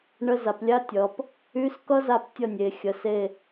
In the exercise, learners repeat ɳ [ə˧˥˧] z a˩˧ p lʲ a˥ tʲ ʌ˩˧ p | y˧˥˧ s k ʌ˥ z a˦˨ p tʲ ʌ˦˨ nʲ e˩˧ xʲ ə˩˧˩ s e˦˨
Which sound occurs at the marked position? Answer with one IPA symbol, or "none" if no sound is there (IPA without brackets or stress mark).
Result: ə˧˥˧